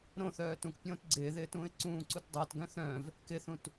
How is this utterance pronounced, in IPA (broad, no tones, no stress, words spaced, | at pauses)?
ɾõθœː tũk pʲõːtɡ͡ǀɪːðɪː tũːɪ̯ǀũːǀut dˤɪːtɡœ̃ θœ̃v | kɪθũt